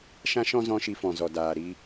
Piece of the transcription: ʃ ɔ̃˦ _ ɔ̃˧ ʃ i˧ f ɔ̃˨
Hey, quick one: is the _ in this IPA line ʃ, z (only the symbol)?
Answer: z